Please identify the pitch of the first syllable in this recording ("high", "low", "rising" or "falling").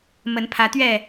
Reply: rising